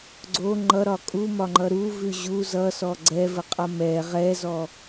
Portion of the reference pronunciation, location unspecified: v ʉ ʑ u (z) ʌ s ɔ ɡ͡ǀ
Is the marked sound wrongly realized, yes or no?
no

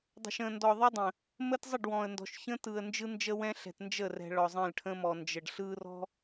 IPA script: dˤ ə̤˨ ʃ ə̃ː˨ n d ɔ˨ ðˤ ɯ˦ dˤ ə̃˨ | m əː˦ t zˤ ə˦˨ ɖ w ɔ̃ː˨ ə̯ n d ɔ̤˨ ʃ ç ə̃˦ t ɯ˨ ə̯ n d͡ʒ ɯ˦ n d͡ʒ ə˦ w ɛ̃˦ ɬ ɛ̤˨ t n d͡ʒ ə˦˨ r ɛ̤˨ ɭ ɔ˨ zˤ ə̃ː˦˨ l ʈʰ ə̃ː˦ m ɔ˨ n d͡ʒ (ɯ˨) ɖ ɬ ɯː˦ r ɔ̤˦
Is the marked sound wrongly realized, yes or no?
yes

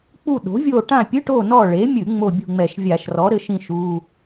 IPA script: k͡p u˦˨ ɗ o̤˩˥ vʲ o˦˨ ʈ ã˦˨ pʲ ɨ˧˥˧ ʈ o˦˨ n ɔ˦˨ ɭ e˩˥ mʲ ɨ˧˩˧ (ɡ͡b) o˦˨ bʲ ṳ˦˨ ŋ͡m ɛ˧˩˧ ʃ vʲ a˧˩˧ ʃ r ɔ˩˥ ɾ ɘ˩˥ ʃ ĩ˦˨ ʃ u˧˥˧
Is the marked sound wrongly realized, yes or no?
yes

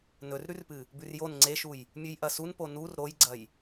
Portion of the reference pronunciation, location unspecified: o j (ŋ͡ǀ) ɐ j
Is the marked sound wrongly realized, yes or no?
yes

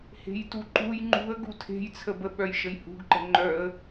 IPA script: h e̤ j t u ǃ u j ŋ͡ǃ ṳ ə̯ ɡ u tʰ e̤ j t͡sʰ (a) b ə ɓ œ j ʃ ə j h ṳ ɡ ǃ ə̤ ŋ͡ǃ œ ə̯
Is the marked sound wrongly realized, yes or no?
yes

